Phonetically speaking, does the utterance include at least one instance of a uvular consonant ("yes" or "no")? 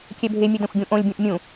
no